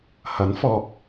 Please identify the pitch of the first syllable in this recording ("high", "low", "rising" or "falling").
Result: rising